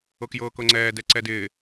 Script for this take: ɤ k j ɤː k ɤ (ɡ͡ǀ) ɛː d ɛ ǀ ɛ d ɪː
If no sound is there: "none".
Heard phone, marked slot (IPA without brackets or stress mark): ŋ͡ǀ